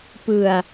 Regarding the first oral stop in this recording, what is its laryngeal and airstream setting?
plain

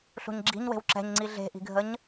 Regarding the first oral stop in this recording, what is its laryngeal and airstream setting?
click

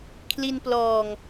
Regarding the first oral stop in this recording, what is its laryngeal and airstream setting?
aspirated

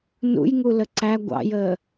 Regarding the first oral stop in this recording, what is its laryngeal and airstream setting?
click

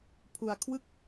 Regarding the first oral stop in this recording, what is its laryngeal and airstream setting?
aspirated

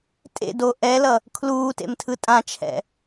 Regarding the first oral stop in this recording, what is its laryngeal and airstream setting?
ejective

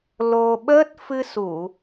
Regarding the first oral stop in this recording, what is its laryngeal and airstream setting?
implosive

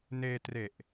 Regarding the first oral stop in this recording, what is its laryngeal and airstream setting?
plain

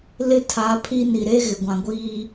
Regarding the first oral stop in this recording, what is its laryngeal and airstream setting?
aspirated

